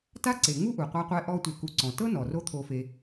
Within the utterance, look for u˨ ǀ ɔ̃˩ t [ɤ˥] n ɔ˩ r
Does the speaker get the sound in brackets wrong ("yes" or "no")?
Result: no